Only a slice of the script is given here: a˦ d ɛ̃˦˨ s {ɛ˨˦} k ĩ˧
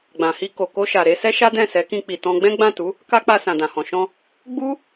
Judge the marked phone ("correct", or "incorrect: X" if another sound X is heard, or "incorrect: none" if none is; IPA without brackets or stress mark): correct